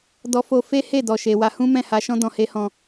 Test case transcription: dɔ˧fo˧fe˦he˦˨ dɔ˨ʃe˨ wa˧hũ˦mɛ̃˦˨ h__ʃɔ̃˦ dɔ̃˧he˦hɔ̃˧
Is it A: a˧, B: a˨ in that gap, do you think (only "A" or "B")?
A